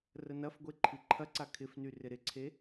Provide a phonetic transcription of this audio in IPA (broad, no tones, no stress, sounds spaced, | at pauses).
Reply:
r ə n ɐ f ɡʷ e ǃʰ i ǃʰ ɐ ǀ a kʰ ɪ f n y r ɪ ɾ ɪ ǀʰ e